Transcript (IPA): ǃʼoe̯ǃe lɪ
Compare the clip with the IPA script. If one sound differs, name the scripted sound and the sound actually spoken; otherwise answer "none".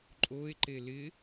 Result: none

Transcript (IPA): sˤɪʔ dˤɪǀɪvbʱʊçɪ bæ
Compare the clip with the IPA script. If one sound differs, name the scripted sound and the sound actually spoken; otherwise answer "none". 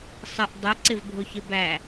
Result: none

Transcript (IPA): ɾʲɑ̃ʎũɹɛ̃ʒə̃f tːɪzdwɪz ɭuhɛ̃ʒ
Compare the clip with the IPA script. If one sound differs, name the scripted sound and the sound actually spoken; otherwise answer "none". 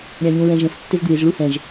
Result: none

